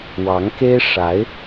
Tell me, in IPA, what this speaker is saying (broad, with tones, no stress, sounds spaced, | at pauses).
w ɑ˧˥ ŋ k e˥ ɪ̯ ʂ a˧˥ ɪ̯